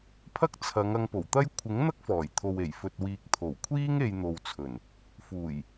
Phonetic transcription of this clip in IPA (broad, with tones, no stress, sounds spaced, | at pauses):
pʰ ɐ˥ k̚ t͡sʰ ɐ˨˧ ŋ ɐ˧ ŋ p o˨˩ w t̪ ɐ˥ j kʷʰ ɪ˨˥ ŋ n̪ ɐ˥ k̚ f ɔː˨˩ j t̪ʰ o˨ w e˨˩ j f ɵ˨ t̚ w iː˨ k̚ t̪ʰ o˨˩ w kʷʰ iː˥ ŋ e˧ j n̪ o˨ w t͡sʰ ɵ˨˩ n | f uː˨˩ j